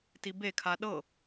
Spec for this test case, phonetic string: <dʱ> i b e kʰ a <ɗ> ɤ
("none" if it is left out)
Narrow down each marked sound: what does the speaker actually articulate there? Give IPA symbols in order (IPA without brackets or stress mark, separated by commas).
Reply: t, ɗ